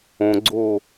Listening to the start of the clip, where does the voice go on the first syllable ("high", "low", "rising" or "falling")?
low